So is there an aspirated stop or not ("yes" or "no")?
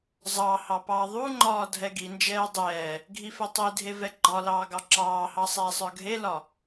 no